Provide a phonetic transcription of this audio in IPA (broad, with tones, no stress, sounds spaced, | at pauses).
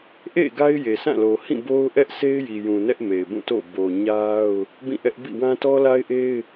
ʔ ḛ˦˨ ɡ a˦ ɪ̯ j e˨ s ã˦˨ l o˨ h ĩ˦˨ b o˦ ʊ̯ ʔ ɛ˦ ʔ s e˦ ɪ̯ j i˨ j ũ˨ n ɛ˦ ʔ m e˨ ɪ̯ b ũ˦˨ t o̰˦˨ b o˨ ɲ a˦ ʊ̯ | b ĩ˦˨ ʔ ɛ˦ ʔ b ḭ˦˨ w ã˦ t ɔ˦ l a˦ ɪ̯ ʔ e˦ ɪ̯